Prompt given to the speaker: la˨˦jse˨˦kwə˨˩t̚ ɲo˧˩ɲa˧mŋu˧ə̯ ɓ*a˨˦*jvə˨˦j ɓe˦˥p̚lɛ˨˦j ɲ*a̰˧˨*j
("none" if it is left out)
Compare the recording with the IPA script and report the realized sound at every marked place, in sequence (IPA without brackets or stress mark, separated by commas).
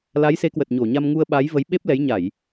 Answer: a˨˦, a˧˩˨